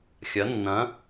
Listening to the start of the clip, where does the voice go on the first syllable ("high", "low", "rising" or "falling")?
rising